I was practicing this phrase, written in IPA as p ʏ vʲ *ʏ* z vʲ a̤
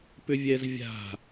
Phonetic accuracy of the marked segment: incorrect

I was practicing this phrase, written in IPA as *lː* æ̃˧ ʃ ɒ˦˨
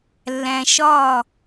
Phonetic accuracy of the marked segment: correct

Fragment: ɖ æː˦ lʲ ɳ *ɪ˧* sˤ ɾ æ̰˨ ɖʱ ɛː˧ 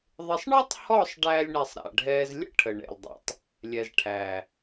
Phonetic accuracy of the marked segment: incorrect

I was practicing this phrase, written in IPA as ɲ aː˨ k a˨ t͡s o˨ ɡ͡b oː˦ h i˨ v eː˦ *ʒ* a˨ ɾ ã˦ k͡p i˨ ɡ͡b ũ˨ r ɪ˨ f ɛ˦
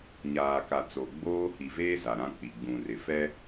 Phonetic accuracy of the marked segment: incorrect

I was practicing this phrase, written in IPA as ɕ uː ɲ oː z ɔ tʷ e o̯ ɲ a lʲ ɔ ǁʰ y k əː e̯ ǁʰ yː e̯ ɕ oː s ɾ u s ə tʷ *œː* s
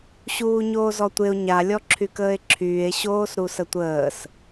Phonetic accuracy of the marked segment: incorrect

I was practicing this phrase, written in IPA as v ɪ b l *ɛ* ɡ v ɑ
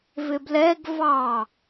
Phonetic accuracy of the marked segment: correct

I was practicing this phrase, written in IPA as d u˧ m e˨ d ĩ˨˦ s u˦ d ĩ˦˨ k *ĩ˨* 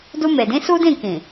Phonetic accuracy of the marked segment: correct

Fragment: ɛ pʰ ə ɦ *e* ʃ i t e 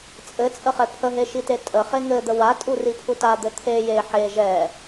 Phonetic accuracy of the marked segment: correct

